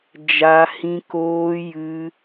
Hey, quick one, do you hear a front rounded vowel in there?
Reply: no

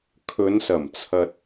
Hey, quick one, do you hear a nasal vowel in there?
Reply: no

